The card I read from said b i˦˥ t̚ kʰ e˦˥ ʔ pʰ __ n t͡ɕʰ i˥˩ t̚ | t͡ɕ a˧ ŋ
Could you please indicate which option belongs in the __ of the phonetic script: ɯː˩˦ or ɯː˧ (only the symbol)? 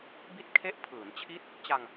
ɯː˩˦